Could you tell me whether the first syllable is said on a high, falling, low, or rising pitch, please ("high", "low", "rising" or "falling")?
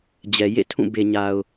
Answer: low